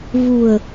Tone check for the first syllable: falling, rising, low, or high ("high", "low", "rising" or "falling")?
low